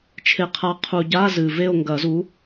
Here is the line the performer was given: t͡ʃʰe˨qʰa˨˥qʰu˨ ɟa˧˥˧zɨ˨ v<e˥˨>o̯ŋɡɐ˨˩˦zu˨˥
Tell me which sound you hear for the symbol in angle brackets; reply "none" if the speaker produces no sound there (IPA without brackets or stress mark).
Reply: e˥˨